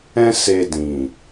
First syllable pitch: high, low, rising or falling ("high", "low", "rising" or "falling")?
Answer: high